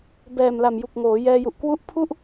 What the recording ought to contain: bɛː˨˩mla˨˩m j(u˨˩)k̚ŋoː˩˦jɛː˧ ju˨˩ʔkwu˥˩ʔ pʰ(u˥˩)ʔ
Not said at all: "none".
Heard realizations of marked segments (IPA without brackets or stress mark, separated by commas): u˨˩, u˥˩